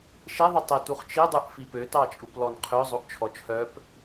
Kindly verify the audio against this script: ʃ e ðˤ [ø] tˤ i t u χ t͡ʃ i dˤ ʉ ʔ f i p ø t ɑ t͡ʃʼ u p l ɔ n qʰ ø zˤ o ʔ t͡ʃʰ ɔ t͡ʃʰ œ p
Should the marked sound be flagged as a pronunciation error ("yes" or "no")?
yes